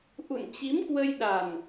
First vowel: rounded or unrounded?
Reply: rounded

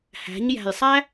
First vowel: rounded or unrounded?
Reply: unrounded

